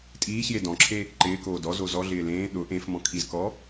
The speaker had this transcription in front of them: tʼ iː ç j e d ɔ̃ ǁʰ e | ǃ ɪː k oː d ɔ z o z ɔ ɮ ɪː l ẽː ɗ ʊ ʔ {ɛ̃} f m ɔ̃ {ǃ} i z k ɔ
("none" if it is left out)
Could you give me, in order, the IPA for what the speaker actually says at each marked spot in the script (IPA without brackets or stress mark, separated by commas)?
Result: ẽ, kʰ